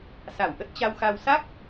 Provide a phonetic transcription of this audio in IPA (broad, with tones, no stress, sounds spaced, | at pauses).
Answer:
s a˧˩ w ʔ ə˦˥ t̚ t͡ɕ a˧ w x a˧ w s a˦˥ k̚